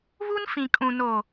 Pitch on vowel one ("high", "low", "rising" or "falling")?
high